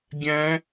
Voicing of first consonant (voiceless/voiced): voiced